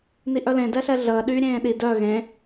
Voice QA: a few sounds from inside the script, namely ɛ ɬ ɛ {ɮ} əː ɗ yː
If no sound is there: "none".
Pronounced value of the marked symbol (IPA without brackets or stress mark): ɮ